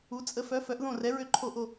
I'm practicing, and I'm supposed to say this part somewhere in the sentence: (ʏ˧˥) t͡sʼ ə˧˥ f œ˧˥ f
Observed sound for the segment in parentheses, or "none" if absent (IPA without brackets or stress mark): u˧˥